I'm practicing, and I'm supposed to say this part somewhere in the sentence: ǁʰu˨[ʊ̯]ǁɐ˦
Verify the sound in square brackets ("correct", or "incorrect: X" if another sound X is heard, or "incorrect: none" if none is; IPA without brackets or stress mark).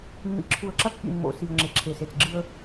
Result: incorrect: ə̯